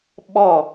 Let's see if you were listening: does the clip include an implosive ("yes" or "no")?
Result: yes